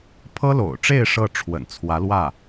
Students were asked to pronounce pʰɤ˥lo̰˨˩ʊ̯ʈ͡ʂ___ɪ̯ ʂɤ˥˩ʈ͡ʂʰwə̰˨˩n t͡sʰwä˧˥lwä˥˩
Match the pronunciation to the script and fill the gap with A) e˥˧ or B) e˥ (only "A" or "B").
A